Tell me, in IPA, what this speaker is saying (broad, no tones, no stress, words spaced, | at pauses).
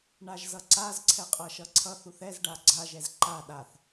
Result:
ɳaʒzʌǀaz ǀʰɛqʼʌʃʌǀʰʌθ uθɛz ɖaɡ͡ǀa ʒɛzǃa ɗaθ